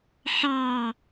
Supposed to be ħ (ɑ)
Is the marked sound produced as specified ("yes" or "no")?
yes